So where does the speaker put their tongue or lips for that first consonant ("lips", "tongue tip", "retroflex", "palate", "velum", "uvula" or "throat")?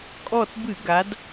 velum